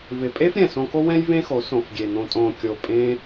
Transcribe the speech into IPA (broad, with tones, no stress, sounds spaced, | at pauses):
v ɪ˨ pʼ e˦ f ɾʲ ɛ̃˨ s õ˧ k o˦ w ɛ̃˦ j v ẽ˦ x o˨˦ s õ˨ f ɡʲ e˨ n̪ õ˨ tʼ õ˨ kʲ o˨ pʼ ẽ˦